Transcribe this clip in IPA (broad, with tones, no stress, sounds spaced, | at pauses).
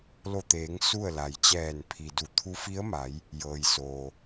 l o˧˩ t̪ eː˩˧ ŋ s u˥˨ ə̯ l a˩ j t͡ɕ ɛː˧˩ n pʰ i˩ d u˧˩ t̪ʰ u˧˥ f i˧˥ ə̯ m a˩˧ j | j ɤː˩ j s oː˩